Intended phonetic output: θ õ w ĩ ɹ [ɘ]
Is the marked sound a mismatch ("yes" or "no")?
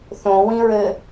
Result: no